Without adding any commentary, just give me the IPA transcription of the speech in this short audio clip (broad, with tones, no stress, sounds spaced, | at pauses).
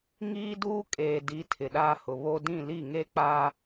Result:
ŋ iː˦ d uː˦ kʼ eː˨ d i˨˦ tʰ ɪ˨ ɗ aː˦ h ʊ˨ β o˦ d ĩ˦˨ l i˦˨ ŋ e˦ k͡p a˦